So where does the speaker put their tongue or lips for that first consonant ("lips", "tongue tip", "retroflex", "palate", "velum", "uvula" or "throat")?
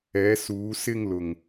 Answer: tongue tip